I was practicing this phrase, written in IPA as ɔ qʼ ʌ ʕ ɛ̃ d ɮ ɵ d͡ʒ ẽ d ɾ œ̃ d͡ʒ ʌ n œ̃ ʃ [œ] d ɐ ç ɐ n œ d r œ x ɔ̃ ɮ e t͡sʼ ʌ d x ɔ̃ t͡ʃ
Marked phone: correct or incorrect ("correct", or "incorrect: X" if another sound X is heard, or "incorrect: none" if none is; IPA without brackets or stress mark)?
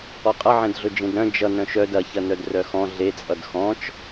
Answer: correct